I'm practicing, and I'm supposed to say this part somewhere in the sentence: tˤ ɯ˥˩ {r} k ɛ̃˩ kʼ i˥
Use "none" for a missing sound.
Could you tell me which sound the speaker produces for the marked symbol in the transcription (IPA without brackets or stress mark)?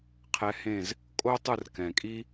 r